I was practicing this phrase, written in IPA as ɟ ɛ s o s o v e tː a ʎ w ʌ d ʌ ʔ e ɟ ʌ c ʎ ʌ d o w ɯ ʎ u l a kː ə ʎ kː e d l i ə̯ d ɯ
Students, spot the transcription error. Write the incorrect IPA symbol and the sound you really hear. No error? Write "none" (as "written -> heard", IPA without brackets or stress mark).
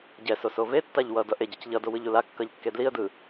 ə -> ʌ